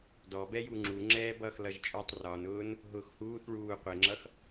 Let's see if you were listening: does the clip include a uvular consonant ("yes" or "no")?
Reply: yes